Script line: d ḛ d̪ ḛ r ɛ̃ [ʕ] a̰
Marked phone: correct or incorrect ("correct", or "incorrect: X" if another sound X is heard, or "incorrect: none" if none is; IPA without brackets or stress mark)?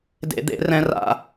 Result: incorrect: r